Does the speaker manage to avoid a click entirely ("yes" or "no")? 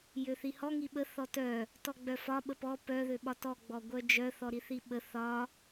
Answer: yes